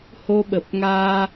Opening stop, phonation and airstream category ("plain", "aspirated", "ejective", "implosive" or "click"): implosive